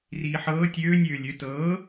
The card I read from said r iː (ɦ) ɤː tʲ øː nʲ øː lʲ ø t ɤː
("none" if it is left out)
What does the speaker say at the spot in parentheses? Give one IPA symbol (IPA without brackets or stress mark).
ħ